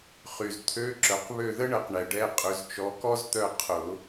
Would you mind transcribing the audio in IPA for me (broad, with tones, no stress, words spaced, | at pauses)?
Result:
χy˨zt̪ʰø˧˥˧ǁœ˨q βø˦˨ðə˥ɳə˨˦q ɳɛ˨ɖɛ˧˥˧qʼø˨˦z t͡ʃɔ˨˦kɔ˥zt̪œ˦˨ qʰʊ˨˩˦